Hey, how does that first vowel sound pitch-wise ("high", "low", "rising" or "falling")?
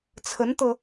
rising